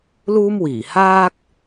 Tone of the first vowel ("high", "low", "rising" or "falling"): high